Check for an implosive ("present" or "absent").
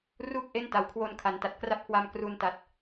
absent